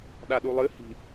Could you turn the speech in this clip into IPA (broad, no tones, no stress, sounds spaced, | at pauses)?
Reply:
ɗ a ɗ u lˠ ɨ h i̤